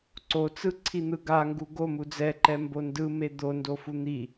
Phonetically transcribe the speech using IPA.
ǀ o t͡s ɯ ǀʰ i n̪ ɯ ɡ a ŋ ɡ u ɡ o m u d͡z ɛ ǃ ɛ m b o n d ɯ m e d̪ o n d o f u n̪ i

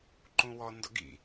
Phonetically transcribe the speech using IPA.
ǃ ũ w ɔ n d ɔ̰ ɡ ḭ

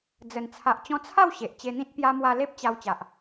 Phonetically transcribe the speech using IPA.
d͡z ə˨˩ n t͡sʰ a˨ ʔ t͡ɕ ɔ̃˧ t͡sʰ a˥˧ w ɕ e˨ ʔ t͡ɕ e˧ n̪ ĩ˦ t̚ p j a˧ m w a˧ l e˦ p̚ t͡ɕ a˧ w t͡ɕ a˨ ʔ

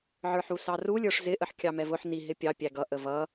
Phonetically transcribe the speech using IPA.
ʕ ə˞ ħ u s ɑ r u lʲ ə˞ ʂ z ɪ ʔ ə ħ kʲ ɑ m ɛ v ʊ ħ n i ɦ ɪ pʲ ɑ pʲ æ ɡ ʌ ʔ ə v ʌ

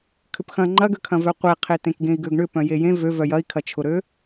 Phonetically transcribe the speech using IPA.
kʰ ʏ p x ɐ̃ ŋ͡ǃ ɐ ɡ ø kʰ ɐ̃ v œ qʷ e qʰ e t ẽ k ɡ ẽ i̯ ɡ ø ɡ ɳ ʏ p œ̃ j e j ẽ v ø v œ j ɐ i̯ kʰ ɐ t͡ʃʰ ʊ ɾ ø

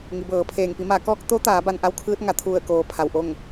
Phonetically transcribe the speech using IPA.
ŋ i˩˧ b ɤː˩˧ pʰ eː˧˩ ŋ p i˩˧ m a˩˧ k ɔː˧ k̚ t̪ o˧˥ t̪ aː˩˧ b a˧ n ʔ a˧˥ w kʰ ɯː˧˥ t̚ ŋ a˩˧ t̪ʰ u˧˩ ə̯ k oː˩ pʰ a˧˩ w ʔ o˥˨ ŋ

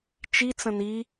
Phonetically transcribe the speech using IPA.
t͡ʃ i t͡s ə̃ n i

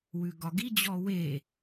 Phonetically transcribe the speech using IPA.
w ʉ ɡ ɒ ɡ i d͡ʑ ɔ w e

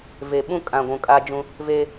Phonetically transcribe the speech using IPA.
v e˨ ɓ ũ˦ kʼ ã˨ ɡʷ ũ˨ kʼ a˦ d͡ʒ ũ˦ | v e˦

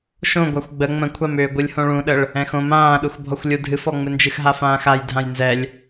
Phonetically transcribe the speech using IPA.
ʃ õ ɡʷ a xʷ ɡ͡b ə ŋ͡m ə̃ kʷʰ a m ʏː ɡʷ ɨ lʲ h õ ɭ ũ ɗ ə ɭ | ɛ̃ x õ m ãː ɗ u x bʱ ɔ xʷ lʲ u dʱ ɨ f ɔ ŋ͡m ɨ n d͡ʒ ɨ x ɦ a f ãː x a j dʱ ã j n z ɛ lʲ

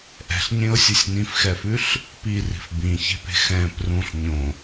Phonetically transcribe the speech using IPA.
ʔ ɛ̤ ɬ ɲ ẽ ʊ̯ sʲ ɯ sʲ n ĩ f x ɛ f ʉ ɬ | p i r i̤ f b ĩ ç e̤ p e̤ x ɛ̃ p r ũ ɬ ɲ õ

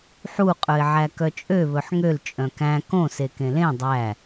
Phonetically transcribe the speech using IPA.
ħ u qʼ ɵ ɪ̯ ʕ æ k œ t͡ʃʼ ø β ɵ ħ ŋ ø l t͡ʃʼ œ̃ k æ̃ k õ s e k ẽ l ẽ dˤ æ

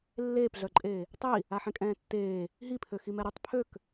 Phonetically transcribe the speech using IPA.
lː eː p ɮ œ ǃʼ eː | tˤ i | a ħ ɛ̃ kʼ ɛ̃ː tː eː | ɦ i pʰ ø x i m ɛ ɾ y tˤ pʰ ø k

